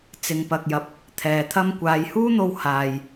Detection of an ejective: absent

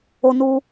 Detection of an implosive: absent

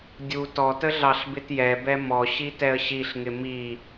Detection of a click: absent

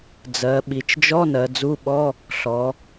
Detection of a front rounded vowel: absent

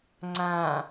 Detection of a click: present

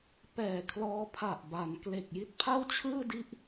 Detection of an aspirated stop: present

